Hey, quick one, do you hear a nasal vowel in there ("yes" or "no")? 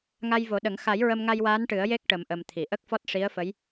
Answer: no